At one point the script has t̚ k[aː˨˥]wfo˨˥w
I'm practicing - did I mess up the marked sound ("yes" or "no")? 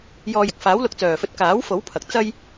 no